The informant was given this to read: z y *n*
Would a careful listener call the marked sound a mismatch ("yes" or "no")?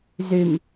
yes